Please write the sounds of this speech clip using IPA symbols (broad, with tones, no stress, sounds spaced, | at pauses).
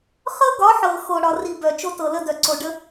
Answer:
χ ɤ˦ ɡ ɒ˨˦ ħ ɤ˨ x o˨ ɽ ɒ˨ r i˨ b œ˨ t͡ʃ o˦ t ɤ˨ l ə˦ d œ˨ ǀ o˨ ɖ ə˦